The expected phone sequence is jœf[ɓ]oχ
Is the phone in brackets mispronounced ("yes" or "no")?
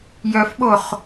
no